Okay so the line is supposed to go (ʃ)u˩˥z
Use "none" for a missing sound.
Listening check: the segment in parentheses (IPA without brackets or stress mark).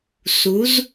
s